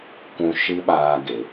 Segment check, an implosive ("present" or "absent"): present